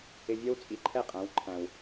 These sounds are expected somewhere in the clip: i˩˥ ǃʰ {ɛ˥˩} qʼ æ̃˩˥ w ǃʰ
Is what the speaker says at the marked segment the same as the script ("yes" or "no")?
yes